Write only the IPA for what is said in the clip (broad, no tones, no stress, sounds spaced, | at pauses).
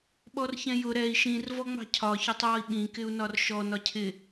ɓ ɔ r ç ɛ̃ j ʊ ɾ ɛ i̯ ʃ ĩ r v ɔ ŋ͡m ɑ̤ cʰ ɒ ç ɒ tˤ j ɔ i̯ ɓ ĩ k ɪ u̯ n ɒ r ʃ ɔ n ɒ cʰ ɪ